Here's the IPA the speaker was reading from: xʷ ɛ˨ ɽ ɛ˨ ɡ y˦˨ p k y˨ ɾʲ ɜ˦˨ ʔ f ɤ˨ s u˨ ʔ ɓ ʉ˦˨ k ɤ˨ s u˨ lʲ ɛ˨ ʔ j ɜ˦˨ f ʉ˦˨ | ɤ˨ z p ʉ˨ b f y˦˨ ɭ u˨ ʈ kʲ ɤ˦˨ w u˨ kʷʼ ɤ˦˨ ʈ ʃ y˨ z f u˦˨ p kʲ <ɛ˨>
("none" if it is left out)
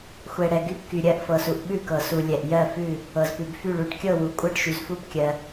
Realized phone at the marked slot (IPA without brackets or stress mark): ɜ˨